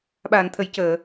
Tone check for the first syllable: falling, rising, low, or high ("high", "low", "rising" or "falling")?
low